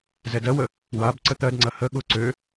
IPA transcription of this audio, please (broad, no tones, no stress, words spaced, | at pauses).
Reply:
zɛdɜwə | wab ǀət̪ɜdŋ͡ǀɐ hə ɠʊ ǀø